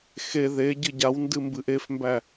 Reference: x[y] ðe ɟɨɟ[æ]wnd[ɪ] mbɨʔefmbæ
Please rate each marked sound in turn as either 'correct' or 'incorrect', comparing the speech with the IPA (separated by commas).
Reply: incorrect, incorrect, incorrect